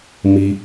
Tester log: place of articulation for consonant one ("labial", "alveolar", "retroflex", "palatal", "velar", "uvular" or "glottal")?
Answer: labial